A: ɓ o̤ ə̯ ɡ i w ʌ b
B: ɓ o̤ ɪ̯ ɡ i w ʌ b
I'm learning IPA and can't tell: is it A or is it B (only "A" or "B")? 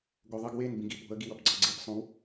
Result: A